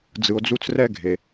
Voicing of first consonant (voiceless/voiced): voiced